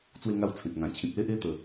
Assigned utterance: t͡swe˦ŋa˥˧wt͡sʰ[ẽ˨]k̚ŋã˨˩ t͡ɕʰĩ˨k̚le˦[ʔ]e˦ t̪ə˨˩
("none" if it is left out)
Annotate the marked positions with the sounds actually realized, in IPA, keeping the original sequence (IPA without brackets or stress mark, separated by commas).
ẽ˨, ʔ